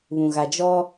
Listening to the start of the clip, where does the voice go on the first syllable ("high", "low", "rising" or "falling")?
low